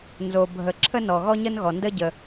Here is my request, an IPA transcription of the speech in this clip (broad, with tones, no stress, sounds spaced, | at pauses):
n z o˩ bʱ ə˩ ǁʰ ə˥ n ɔ˩ ɣ ɔ˥ ɲ ə˥ n ɣ ɔ˩ n d ə˥ ɟ ə˩